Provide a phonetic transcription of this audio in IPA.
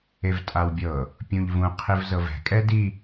e v tʼ a w bʲ ɤ | pʲ ũ ʎ v ũ qʰ i v z ɤ v ɛ̤ kʼ ɛ d i

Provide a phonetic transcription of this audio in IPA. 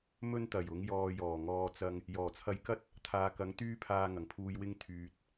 m ɵ˥ n t̪ ɐ˨˩ j ʊ˨˥ ŋ j ɔː˧ j ɔː˨˩ ŋ ɔː˧ t͡s ɐ˧ ŋ | j ɔː˨˩ t͡sʰ ɐ˧ j k ɐ˥ t̚ | t̪ʰ aː˨˧ k ɐ˨˥ ŋ t̪ yː˥ pʰ aː˧ ŋ ɐ˨˩ ŋ pʰ uː˧ j w ɪ˥ ŋ t̪ʰ yː˧ t̚

